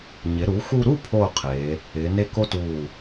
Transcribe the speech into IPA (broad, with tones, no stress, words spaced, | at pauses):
ɲɪ˩˧ ɾu˩˧xu˧ɾu˥˧ pʰoː˥˧qʰeː˩˧ | ɪː˩˧ne˥ ko˥tuː˧˩